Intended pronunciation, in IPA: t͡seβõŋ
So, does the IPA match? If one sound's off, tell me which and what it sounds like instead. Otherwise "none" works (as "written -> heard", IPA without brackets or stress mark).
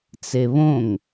none